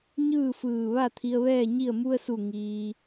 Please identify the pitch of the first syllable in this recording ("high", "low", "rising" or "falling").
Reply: falling